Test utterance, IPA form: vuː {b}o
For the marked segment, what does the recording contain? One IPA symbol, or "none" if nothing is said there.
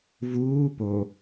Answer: p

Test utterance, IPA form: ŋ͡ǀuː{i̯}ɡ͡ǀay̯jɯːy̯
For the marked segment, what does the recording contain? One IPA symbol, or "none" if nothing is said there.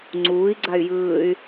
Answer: i̯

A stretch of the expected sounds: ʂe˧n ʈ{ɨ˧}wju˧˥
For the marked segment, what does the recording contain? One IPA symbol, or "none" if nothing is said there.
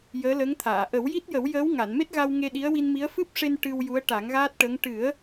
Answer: ɨ˧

